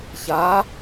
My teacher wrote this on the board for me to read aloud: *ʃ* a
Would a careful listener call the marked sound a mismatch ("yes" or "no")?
yes